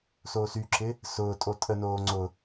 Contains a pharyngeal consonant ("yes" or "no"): no